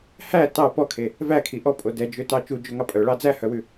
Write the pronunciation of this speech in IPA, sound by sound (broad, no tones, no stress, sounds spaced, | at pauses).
h æ t ɑ p ɔ kʰ e | v æ kʰ i ʔ ɔ pʼ o d ɛ d͡ʒ ø t ɑ t͡ʃ u d͡ʒ ø ŋ ɑ pʼ œ ɭ ɑ d͡z æ h œ w ʉ